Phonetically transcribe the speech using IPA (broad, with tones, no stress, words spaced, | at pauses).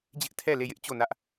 d͡ʑɪ˦ʔtʰɛ˦˨le˦˨jɪ˦ʔ t͡ɕo˦˨nä˦ʔ